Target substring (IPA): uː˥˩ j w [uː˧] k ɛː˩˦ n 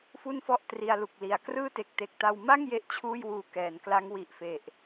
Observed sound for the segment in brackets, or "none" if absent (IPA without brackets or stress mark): uː˧